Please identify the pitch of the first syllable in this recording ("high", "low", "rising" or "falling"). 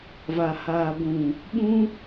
low